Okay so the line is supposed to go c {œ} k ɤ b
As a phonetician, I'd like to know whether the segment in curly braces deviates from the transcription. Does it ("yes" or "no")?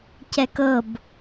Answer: yes